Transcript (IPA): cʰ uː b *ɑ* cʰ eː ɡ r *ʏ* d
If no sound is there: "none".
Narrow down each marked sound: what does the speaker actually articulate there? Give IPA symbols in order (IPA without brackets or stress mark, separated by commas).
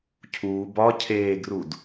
ɒ, u